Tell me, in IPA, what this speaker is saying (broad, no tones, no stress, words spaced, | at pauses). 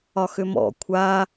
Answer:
ɒxʏmɔ̰ kʷʰa